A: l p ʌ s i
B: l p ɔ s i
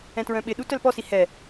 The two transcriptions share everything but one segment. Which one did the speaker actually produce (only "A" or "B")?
B